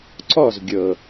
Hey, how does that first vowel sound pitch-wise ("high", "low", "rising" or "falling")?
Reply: falling